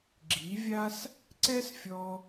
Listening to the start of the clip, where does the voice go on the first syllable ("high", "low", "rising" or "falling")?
rising